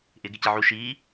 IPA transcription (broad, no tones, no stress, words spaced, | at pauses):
ʔɪ ɡɪcɪʕu ʃiː